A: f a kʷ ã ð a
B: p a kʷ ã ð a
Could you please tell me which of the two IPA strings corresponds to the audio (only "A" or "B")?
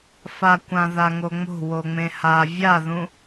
A